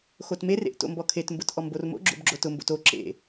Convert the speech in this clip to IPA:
xotmerḛʔ to̰mbɔkʰetmbʊt ʔɔmbormo̰ɡ͡ǁo̰b ɡ͡ǁotʊmbo̰t o ǁḛ

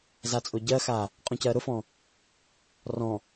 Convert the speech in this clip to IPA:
zat͡sʼʊɟɜxa | qʼũcɜɾʊfɔ̃ | rɔ̃

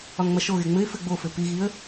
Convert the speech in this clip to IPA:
ɒŋŋ͡mɐʃoɣe ŋ͡mɘɪ̯fɘ ɡ͡bofɘ piɣiə̯

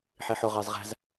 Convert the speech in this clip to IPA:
ħiħʊ ʁɑzʁæ̤z

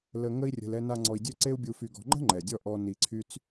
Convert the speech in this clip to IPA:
lə˧ ŋə˦i̯rʲə̤˧l ɛ˧na˧ ŋ͡ǀɔ˧i̯dʲø˦ǀe˦u̯bʲu˧ fy˧ɡɔ̤˧ ŋ͡ǃə̤˦ŋ͡ǃɛ˨dʲɔ˧ ʔɔ˧ ni˧ǀʰy˦t͡s

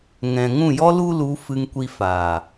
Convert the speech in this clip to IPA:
ŋɛ̃˨ŋũ˦˨jɔ˦ lu˦lu˨˦ fɨ˧ŋkʷi˧faː˨

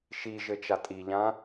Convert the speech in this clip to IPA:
ʃiʒɘ t͡ʃatʼiʎã

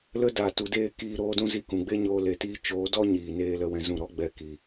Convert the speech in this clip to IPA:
lə˧daː˨ tu˨deː˦˨ kiː˦˨ɾoː˦dũ˦zi˦˨ kũ˨ɡ͡be˦ɲoː˧ le˨tiː˧ t͡ʃoː˨˦dɔ˦ ɲiː˨neː˧ lə˦wɛ̃˦zũ˦˨ ɾɔ˦ɡ͡bɛ˧ ki˨

